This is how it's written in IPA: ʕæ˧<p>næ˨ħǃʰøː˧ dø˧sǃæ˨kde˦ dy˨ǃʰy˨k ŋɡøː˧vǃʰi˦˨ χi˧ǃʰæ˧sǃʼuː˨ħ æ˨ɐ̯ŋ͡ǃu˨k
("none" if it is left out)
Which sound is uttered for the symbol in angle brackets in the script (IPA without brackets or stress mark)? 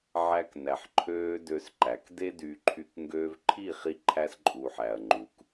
k